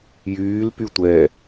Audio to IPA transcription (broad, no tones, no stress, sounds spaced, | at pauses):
j yː l p y tʷ ɛ